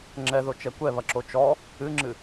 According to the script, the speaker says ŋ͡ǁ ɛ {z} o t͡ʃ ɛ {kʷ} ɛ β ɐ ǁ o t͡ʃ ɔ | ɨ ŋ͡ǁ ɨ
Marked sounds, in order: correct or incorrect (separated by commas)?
incorrect, correct